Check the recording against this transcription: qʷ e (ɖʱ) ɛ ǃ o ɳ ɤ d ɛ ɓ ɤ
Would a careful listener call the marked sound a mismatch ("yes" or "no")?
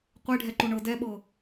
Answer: no